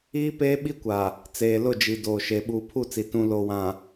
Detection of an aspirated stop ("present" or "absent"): present